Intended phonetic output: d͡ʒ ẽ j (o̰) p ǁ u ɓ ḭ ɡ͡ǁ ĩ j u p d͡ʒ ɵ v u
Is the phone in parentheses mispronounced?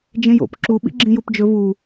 no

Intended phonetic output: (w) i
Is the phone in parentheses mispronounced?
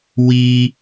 no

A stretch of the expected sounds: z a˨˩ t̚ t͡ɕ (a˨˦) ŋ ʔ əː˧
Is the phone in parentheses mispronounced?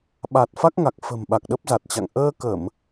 yes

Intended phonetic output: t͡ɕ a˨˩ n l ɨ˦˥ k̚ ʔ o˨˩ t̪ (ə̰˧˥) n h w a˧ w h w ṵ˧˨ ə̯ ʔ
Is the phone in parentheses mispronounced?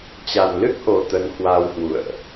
yes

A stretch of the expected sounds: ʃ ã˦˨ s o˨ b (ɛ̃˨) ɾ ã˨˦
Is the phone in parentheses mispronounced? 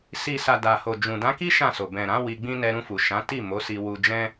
no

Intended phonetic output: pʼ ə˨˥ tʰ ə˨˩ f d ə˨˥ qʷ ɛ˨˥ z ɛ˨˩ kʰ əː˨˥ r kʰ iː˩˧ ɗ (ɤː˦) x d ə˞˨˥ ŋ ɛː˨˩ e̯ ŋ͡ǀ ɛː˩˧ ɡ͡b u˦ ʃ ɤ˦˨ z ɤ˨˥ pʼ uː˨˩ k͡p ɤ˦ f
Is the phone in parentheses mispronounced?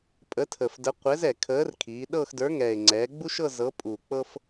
yes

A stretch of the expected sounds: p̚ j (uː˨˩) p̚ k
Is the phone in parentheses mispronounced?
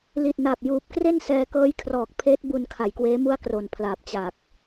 no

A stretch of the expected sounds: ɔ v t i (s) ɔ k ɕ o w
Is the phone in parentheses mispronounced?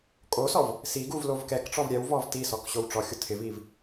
no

